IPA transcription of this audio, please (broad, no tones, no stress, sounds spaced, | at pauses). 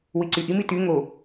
w i ǀ y ʔ i m i t y ŋ o